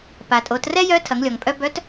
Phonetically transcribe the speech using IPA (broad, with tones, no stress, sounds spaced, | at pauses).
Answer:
p a˩ tʼ o˩˧ t r ɛ˥ j œ˧˥ tʰ ɐ˩˧ ŋ lʲ ɔ˩ ŋ pʼ œ˧ b œ˧˥ t